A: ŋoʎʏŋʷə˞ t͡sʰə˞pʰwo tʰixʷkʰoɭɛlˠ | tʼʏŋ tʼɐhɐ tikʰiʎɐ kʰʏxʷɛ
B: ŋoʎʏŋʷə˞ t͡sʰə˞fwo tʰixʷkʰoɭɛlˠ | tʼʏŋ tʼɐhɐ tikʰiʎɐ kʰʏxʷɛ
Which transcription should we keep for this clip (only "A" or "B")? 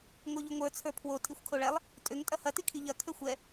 A